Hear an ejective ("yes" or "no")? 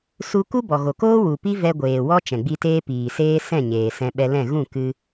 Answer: no